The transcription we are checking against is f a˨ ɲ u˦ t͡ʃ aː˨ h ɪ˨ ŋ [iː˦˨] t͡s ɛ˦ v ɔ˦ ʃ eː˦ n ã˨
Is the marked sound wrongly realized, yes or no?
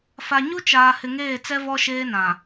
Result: yes